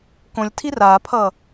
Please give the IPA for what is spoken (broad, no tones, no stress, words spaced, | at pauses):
kõlʲtʰi raːpʰʌ